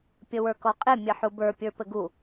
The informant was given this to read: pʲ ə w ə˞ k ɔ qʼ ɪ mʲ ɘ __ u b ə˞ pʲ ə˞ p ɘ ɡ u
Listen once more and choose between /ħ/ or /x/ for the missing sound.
ħ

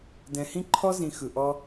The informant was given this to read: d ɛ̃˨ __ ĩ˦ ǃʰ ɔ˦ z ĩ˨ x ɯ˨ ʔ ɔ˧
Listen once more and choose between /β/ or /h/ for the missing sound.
h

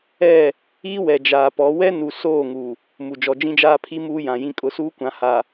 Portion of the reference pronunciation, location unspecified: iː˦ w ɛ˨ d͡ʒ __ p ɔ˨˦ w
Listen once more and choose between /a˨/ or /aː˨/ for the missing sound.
aː˨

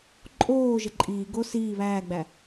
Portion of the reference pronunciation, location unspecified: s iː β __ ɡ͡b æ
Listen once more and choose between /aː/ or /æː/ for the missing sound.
æː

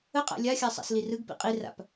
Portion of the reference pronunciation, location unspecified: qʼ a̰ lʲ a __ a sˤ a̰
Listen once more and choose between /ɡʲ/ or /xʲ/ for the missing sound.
xʲ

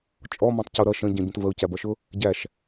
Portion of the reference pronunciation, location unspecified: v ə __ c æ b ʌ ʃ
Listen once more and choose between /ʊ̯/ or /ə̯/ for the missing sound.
ʊ̯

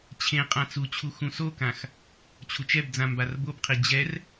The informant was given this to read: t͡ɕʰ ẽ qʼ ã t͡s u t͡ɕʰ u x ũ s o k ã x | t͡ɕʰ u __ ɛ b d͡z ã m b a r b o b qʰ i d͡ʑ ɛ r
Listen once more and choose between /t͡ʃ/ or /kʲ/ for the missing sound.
t͡ʃ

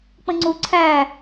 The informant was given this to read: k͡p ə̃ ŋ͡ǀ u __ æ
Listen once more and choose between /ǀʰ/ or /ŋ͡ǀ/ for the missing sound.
ǀʰ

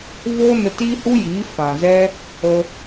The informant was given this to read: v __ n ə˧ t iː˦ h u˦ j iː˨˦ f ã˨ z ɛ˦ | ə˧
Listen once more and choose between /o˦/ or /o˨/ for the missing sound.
o˦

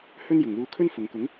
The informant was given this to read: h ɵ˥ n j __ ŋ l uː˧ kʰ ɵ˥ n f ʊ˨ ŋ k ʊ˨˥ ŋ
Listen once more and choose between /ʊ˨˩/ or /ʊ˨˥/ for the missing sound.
ʊ˨˩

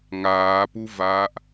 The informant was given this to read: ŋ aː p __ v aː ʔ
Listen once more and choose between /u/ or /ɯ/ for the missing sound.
u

